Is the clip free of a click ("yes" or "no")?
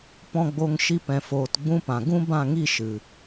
yes